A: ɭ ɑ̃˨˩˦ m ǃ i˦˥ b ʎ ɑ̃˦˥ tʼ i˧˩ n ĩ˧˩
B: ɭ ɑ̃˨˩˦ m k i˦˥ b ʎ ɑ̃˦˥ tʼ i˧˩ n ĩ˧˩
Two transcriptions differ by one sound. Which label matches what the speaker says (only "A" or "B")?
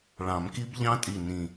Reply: B